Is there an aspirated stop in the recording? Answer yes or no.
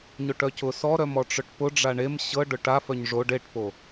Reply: no